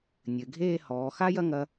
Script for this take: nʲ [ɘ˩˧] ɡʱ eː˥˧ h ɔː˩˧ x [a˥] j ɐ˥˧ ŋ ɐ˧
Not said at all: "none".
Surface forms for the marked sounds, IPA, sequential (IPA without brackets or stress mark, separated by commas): ɘ˩˧, a˥